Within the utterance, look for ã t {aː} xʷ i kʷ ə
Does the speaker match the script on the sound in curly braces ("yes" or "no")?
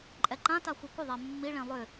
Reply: no